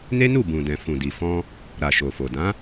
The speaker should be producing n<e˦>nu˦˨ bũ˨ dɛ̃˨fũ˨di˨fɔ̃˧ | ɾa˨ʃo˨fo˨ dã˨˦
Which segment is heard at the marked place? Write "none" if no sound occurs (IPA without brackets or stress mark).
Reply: e˦